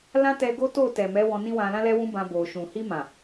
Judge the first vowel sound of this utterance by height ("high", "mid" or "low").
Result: low